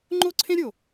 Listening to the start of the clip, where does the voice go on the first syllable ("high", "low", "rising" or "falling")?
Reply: high